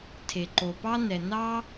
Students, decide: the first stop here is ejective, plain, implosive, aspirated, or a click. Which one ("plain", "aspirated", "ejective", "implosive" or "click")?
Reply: aspirated